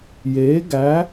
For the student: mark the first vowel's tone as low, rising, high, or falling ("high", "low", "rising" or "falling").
rising